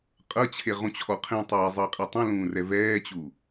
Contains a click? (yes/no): no